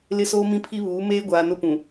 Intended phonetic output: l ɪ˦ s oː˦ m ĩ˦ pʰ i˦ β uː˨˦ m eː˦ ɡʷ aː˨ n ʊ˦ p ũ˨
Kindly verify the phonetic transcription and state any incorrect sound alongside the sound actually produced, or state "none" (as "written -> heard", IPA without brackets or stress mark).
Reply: none